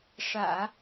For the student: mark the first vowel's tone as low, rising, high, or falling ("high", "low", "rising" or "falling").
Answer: low